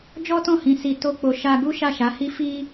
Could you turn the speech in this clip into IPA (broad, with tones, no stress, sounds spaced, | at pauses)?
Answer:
d͡ʒ ɔ˦ t ɔ̃˦˨ h ĩ˨ s i˧ t o˦ k͡p o˧ ʃ a˧ ɡ u˦ ʃ a˦˨ ʃ a˨˦ h i˦ f i˦